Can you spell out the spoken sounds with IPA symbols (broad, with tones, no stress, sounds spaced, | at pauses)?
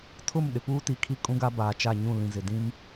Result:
tʰ ʊ˦˨ m ɗ ɪ˨ p uː˦ t i˨ kʰ i˦ kʼ ũ˦ ɡ a˦ b aː˨ t͡ʃ a˦˨ ɲ ũ˦˨ l ĩ˨ z ɪ˨ d ĩ˦ m